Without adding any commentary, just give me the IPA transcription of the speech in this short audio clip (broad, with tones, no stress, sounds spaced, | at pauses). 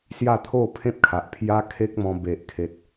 s j a˥˧ t̪ʰ o˥˧ pʰ ẽ˦ p̚ kʰ a˨ ʔ pʰ j a˦ kʰ e˦ k̚ m ɔ̃˧ b e˨ ʔ kʰ e˨ t̚